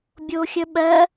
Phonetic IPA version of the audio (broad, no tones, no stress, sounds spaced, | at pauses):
bʲ o xʲ ə ɓ ɜ